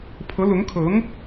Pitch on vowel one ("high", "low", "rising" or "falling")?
rising